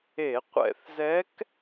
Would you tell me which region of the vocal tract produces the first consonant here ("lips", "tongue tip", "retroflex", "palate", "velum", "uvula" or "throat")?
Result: uvula